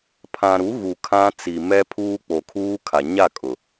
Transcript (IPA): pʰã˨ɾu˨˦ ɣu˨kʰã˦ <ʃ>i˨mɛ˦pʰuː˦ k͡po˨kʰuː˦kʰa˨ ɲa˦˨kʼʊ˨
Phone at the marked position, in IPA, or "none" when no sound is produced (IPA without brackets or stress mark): t͡s